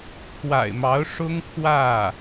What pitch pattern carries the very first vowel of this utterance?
low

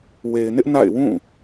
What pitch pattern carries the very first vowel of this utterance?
low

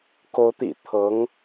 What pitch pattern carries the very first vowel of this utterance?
rising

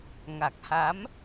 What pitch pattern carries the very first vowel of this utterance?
low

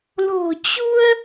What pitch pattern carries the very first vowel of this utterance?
low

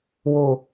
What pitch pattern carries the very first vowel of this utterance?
low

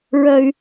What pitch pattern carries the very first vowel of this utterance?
high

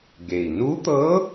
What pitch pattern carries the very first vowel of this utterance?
low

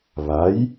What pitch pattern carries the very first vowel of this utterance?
rising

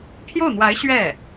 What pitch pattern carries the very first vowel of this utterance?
falling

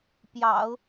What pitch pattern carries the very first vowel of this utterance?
low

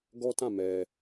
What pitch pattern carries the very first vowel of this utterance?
high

